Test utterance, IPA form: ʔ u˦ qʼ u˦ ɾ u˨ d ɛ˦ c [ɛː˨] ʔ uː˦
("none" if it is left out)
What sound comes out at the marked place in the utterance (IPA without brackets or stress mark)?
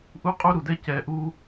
ɛː˨